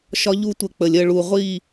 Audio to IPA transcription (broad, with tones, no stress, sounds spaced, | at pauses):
ʃ ɒ˦ ʎ u˦ tʷ ə˧ k͡p ə˨ lʲ ə˦˨ ɭ u˨ ʁʷ i˦˨